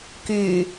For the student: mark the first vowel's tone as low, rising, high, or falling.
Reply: low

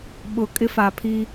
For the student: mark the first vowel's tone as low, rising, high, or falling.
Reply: low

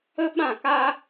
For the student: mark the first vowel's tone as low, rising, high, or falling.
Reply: high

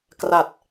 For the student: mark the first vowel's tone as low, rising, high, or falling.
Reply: low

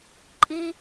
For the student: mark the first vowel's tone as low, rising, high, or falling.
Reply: high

